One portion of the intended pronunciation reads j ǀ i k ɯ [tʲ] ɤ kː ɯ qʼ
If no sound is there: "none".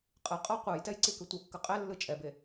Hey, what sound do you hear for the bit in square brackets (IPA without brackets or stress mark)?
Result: tʷ